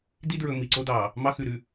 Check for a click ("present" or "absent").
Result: present